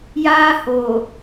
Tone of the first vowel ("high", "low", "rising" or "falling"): high